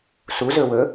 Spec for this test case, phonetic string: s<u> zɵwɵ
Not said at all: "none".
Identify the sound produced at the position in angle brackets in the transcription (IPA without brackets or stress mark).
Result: u